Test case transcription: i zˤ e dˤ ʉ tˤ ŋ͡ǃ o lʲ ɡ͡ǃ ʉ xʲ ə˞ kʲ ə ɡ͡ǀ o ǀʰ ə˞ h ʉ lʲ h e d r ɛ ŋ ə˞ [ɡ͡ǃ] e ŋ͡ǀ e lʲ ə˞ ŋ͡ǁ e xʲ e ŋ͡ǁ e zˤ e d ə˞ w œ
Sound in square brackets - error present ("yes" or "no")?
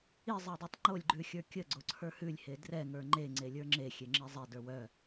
yes